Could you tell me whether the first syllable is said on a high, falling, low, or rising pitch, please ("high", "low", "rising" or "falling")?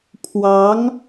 rising